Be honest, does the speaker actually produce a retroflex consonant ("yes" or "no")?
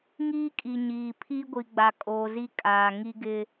no